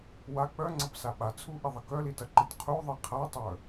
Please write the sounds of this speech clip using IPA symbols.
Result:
wa k͡pœŋ͡ǀɐpsa ɓat͡sʰuʔiðˤɐ kœlitɐǃit qʰuðˤi qʰatˤœ

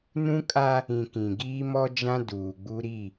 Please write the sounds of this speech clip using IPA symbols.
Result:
nũ˦kʼa˦ | ĩ˨ kĩ˨ɡiː˦mɔ˦d͡ʒã˦ duː˨ɡ͡bu˦ ɾi˦˨

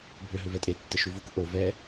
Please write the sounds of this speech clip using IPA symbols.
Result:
bʱʏɦʏ vɛtʼetːə ʃuvuk ʔo vɛ

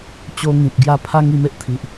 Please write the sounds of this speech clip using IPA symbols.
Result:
t͡ɕo˧ŋĩ˨p̚ɡja˧ pʰa˦ŋ i˧me˦ʔ t̪ʰi˨ʔ

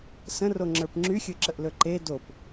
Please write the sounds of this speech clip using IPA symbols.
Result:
sə̃roŋ͡ǁə˞p ŋ͡ǁyxʲɵǁəʔlɵ ǃe dop

